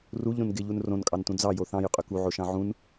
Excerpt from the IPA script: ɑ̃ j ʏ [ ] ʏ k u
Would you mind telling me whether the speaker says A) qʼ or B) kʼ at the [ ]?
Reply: A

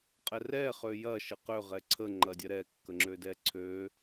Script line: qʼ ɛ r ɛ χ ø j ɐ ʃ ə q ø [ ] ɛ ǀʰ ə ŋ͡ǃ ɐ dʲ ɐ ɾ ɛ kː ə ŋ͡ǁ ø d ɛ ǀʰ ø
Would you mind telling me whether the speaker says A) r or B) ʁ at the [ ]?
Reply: B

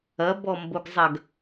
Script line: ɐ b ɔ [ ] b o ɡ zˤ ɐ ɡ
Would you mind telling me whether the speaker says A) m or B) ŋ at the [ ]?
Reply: A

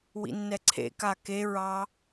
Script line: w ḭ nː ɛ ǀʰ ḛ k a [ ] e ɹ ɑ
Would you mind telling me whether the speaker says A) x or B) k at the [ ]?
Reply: B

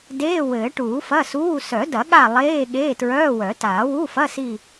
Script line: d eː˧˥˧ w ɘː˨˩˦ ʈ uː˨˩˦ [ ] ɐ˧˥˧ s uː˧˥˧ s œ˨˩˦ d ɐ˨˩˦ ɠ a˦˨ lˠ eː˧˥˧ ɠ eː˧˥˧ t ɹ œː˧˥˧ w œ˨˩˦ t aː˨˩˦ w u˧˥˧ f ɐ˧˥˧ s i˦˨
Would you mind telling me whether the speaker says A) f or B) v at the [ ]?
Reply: A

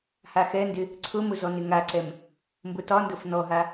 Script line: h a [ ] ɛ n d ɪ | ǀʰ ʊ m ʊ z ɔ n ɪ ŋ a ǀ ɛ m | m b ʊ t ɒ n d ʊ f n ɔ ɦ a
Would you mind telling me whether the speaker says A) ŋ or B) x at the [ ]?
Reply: B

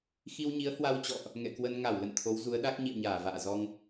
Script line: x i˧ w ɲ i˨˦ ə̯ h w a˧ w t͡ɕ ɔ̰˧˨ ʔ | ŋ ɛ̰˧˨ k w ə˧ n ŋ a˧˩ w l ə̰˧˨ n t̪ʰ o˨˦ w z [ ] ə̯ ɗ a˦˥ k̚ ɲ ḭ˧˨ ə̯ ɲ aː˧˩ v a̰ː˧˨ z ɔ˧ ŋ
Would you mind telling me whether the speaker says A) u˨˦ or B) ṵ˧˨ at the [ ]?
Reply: A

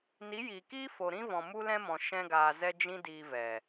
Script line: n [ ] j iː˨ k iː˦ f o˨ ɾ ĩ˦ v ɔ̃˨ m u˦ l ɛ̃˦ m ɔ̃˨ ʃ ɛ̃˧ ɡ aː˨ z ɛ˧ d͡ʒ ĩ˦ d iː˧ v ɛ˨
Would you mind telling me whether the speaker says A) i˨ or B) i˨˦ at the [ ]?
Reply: B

